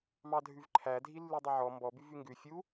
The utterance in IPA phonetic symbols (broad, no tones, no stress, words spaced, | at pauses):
mɑdʱʉvǃʰæ dʱilːʉdˤiʕɔ mbɔbyv yŋɡʉ fʲu